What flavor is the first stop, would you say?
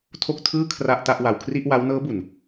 aspirated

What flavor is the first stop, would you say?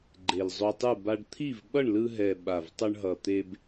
click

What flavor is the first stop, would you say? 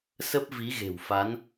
plain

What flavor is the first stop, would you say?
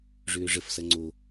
click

